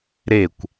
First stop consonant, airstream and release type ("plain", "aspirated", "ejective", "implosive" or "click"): plain